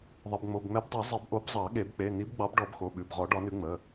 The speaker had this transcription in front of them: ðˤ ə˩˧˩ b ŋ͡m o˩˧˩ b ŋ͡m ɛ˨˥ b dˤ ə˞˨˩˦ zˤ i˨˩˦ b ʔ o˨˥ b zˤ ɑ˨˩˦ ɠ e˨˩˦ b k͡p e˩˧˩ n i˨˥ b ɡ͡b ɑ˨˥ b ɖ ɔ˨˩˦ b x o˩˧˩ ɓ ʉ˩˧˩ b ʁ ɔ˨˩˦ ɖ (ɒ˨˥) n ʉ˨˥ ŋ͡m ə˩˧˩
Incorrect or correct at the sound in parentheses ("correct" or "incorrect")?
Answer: correct